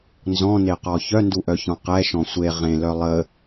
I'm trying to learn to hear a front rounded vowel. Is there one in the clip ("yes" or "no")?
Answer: yes